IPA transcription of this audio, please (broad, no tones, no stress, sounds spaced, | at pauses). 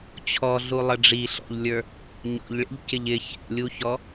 t͡ɕʰ ɔ ɮ u lˠ ə ɖ͡ʐ i ɬ ɔ̰ ʎ lʲ ə˞ | ɲ ɔ̰ ʎ ɭ ḭ ʎ c ɪ ʎ ɪ ç ɛ̰ lʲ u ç ɔ